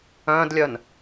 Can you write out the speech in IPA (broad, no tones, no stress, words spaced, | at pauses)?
œ̃ːdlʲœn